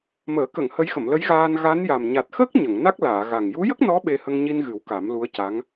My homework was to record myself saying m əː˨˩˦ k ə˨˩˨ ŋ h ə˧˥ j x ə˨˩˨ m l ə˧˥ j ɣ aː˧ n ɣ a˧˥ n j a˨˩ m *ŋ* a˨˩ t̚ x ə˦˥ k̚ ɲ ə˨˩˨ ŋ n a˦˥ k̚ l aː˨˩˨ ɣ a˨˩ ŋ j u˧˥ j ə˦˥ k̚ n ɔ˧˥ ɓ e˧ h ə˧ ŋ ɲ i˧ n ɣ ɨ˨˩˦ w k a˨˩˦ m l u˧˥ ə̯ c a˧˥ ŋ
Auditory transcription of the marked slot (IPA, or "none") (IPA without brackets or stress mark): ɲ